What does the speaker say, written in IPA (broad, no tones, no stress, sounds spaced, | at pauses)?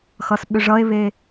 x ʌ s ɓ ʏ ʐ ʌ e̯ β eː